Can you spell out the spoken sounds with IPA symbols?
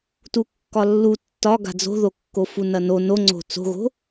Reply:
t u kː ɒ lː u tː ɒ ɡ a̤ d͡z o̤ ð o kː o f u n ɐ n o n o ŋ͡ǀ o̤ t͡s o̤ ɣ o̤

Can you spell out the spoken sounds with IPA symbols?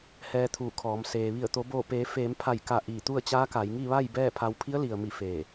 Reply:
h ɛː˧ t̪ʰ uː˧˩ kʰ ɔː˩˧ m s eː˩ ʋ i˧˩ ə̯ t̪ o˩˧ b oː˧˩ p eː˩˧ f eː˩˧ m pʰ a˧˩ j k a˧˩ ʔ iː˧˩ t̪ u˥˨ ə̯ t͡ɕ aː˧˥ k a˩˧ j ŋ i˥˨ ʋ a˥˨ j b ɛː˥˨ pʰ a˧ w pʰ i˧˥ ə̯ l i˩ ə̯ m i˧˩ f eː˧˩

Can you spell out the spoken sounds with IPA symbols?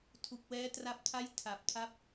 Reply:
tʰ u˨˩ k̚ w ɛː˦˥ t r a˦˥ p̚ tʰ a˥˩ j tʰ a˨˩ p̚ tʰ a˥˩ p̚

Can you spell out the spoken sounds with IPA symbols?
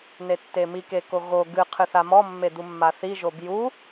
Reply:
n e tː e m i k e k o ɣ o ɡ ɨ qʰ ɨ θ a m ɔ mː e d̪ u mː a θ i ʒ o b j u

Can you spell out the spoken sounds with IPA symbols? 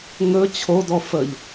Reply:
ŋ ɵ t͡ɕʰ o d ɔ f ə ʎ

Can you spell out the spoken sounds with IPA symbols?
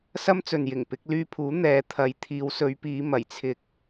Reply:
s ɐ˥ m t͡s ɵ˨ n j ɪ˨˩ ŋ p ɪ˨˥ k̚ l yː˧ pʰ uː˨˥ n̪ ɛː˨˥ t̪ʰ ɐ˨˧ j t̪ʰ iː˨˧ w s ɵ˨˧ ɥ p iː˨˧ m ɐ˨˩ j t͡sʰ ɪ˧ k̚

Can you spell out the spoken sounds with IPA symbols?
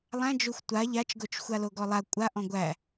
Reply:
lˠ æ̃ d͡ʒ o xʷ tʷ a ʎ a t͡ʃ ɡ o t͡ʃ xʷ a l o ɡ ɔ lˠ a kʷʼ a ʔ ɔ̃ ɡʷ æ

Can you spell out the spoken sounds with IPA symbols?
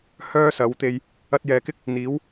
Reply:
h œː˥ s ɐ˨˥ w t̪ e˧ j | ɐ˧ t̚ j ɛː˨ k ɪ˥ k̚ | n̪ iː˨˥ w

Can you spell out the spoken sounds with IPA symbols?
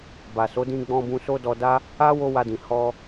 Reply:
b a˨ s o˨˦ d ĩ˧ ɡ͡b ɔ̃˧ b ũ˧ s o˦ d ɔ˧ d a˦ | a˦ w o˦ w a˧ d ĩ˨ h ɔ˧

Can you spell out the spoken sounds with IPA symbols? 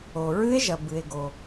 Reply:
o˨ ɹ ɨ˦˥ e̯ ʒ ɐ˨ b ɨ˨ e̯ ɡ o˨

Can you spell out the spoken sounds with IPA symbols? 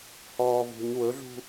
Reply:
h ɔː v ṳ ɲ w ɵ ɮ ṳ

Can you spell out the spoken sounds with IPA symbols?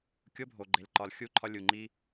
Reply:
kʲ o˦ bʱ o˨ ɡ͡ǃ e˨ l ǃ ɒ˨ l xʲ u˦˨ ǃʰ ɒ˦ lʲ u˨ ŋ͡ǃ i˦

